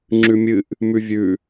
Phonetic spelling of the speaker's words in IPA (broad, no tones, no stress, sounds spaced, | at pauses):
ŋ͡ǁ ʉ mʲ ɨ ʔ | m ʉ vʲ ʉ